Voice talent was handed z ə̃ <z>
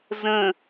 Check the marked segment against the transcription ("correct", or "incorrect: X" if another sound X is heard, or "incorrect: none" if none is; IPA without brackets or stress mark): incorrect: none